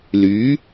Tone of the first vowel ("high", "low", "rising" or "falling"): rising